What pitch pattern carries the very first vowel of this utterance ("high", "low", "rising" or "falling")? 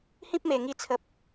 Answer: high